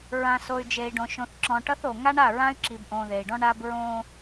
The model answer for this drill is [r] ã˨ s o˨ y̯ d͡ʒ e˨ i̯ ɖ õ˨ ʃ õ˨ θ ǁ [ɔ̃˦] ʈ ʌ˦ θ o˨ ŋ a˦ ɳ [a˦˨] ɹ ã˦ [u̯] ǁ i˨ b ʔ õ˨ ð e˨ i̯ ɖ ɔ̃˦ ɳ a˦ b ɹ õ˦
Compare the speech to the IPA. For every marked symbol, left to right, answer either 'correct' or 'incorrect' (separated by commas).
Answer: incorrect, incorrect, correct, incorrect